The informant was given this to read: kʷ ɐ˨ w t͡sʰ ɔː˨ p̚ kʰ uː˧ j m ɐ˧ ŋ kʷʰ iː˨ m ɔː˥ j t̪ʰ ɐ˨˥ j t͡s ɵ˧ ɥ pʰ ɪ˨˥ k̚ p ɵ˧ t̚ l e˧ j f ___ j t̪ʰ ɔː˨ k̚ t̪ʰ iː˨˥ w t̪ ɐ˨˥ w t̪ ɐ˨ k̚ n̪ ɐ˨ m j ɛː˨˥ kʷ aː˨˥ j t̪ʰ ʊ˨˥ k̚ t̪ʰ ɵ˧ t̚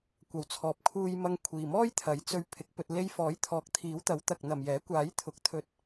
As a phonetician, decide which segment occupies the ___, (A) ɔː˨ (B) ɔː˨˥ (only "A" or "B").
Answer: B